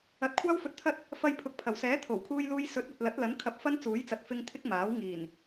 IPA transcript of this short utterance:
ɐ˨˥t̚kʷʰaː˥w fɵ˧t̚t̪ʰɐ˥t̚ | fɐ˧jpʰʊ˨˥k̚pʰɐ˨˩w sɛː˨˥t̪ʰo˨˩wkʰuː˧jluː˧j sɵ˨˥t̚ɐ˨t̚lɐ˨˥t̚lɐ˨˥n kʰɐ˧p̚fɐ˥nt͡suː˨˥jt͡sɐ˨t̚ fɪ˧ŋ t̪ʰɪ˥k̚ maː˨˥w ŋiː˨˩n

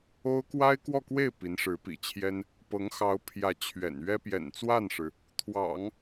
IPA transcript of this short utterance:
o˥ʊ̯ kwa˥ɪ̯kwɔ˥˧kwe˥˩ɪ̯ pi˧˥nʂɻ̩˧˥pḭ˨˩t͡ɕʰjɛ˥n | pɤ˧˥ŋ xɑ˧˥ʊ̯pʰjä˧˥ t͡ɕʰɥɛ̰˨˩nɥɛ˥ pjɛ̰˨˩nt͡swa˥˩nʂɻ̩˩ | t̪ʰwɑ̰˨˩˦ŋ

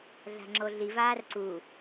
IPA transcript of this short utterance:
ɮa̤ŋ͡ǁoɮi vaːrǀu

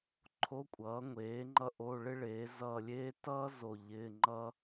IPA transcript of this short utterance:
ǃʰo˧˥˧kʷʼʌː˩˥ŋʷeː˩˥ŋ͡ǃʌ˦˨ ʔo˧˥˧ ɭɪ˥ɭeː˩˥zʌː˦˨lʲeː˥ tʌː˥ zo˦˨ʎɪː˧˥˧ŋ͡ǃʌ˥

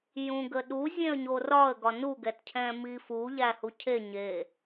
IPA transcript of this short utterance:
jũɡəɗu zʲẽə̯ɲorɒə̯ ɡɒnu ɡɛtcʰɛ̃mifu ʎæhucʰe ɲe

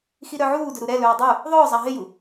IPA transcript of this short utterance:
xiɾœʕuːdɵ ɾuɾɛlɵː dˤu | ðˤɵːzˤa ɦɪju

